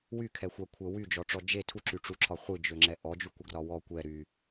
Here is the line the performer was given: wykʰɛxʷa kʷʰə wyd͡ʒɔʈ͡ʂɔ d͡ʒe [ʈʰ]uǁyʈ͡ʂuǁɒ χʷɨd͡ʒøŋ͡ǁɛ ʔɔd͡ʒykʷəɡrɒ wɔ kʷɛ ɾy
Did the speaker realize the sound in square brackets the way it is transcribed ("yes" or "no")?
no